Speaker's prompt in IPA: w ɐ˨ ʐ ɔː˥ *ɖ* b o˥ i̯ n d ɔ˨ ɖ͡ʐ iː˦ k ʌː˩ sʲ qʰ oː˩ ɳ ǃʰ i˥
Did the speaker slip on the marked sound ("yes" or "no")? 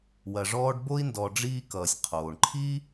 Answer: no